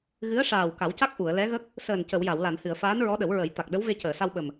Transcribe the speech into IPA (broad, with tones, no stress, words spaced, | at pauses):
ɣɨ˧˥ə̯ʂaː˨˩w ka˨˩˦wca˦˥k̚ ʔu˨˩˨ə̯lɛ˧˥ɣə˦˥k̚ | səː˨˩n cə˨˩˨wja˨˩˨wla˨˩˨nhɨ˨˩˨ə̯ faː˧˥nɹɔ˧˥ɗə˨˩˦w ɹə˨˩˦j t̪a˨˩k̚ɗə˧˥w ve˧cəː˨˩˨sa˧w ɓə˨˩m